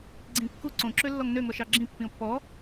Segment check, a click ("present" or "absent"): present